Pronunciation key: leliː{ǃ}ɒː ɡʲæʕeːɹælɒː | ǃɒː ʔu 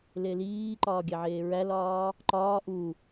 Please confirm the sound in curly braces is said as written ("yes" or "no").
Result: yes